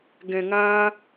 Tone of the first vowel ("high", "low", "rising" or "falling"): low